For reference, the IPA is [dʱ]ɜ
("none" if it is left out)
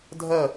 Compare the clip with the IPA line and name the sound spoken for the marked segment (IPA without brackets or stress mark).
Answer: dʱ